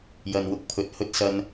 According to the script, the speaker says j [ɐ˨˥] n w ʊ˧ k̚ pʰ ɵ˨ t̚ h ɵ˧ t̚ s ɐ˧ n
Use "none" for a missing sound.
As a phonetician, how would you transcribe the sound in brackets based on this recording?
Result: ɐ˨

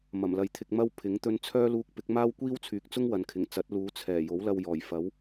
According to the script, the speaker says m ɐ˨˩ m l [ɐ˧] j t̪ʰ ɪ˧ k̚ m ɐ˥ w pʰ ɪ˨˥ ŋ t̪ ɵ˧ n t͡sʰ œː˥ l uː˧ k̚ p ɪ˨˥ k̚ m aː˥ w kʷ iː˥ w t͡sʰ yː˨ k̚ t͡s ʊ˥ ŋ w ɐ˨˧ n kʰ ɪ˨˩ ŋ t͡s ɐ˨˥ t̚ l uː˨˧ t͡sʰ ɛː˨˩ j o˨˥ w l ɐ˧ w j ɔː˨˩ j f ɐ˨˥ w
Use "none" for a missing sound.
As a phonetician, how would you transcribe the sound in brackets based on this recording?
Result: ɐ˨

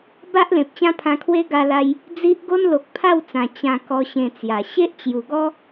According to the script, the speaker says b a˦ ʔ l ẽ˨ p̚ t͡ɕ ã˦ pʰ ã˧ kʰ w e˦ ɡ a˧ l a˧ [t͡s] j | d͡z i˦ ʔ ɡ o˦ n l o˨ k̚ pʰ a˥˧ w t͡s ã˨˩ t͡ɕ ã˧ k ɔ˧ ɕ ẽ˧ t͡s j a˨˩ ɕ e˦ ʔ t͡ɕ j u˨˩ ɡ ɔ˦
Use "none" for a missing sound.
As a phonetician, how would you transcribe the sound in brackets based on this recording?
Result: none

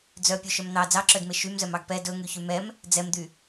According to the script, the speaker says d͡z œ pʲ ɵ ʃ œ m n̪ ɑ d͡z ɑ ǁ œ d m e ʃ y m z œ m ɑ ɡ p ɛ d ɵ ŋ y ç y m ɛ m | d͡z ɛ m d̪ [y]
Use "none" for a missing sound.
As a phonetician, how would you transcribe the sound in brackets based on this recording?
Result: y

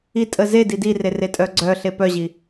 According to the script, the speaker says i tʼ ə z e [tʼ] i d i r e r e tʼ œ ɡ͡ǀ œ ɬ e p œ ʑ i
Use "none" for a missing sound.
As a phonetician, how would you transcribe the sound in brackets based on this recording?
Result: d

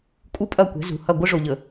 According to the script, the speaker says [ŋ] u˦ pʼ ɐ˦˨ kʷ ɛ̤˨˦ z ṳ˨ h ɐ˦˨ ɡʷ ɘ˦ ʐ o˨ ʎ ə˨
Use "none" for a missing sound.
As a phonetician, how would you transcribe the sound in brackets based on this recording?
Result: kʼ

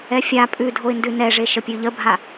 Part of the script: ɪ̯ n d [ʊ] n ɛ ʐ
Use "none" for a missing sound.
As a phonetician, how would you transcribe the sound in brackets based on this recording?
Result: ʉ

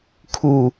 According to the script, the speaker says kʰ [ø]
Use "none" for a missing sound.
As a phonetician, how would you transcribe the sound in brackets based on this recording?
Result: u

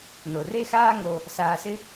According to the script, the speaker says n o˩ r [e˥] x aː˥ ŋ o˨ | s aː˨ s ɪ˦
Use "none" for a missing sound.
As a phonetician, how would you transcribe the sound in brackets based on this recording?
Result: e˥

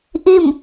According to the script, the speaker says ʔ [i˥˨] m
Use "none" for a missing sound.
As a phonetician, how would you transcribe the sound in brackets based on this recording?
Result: i˥˨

